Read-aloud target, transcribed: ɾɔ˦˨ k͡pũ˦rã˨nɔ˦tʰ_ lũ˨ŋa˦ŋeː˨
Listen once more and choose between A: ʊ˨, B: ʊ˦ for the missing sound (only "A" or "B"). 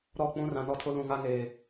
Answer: B